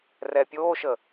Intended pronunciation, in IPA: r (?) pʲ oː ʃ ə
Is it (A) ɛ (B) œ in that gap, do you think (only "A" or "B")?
A